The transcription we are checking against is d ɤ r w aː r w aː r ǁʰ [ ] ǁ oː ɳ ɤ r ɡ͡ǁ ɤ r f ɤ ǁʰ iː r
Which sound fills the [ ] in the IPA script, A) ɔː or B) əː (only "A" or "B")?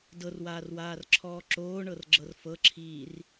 A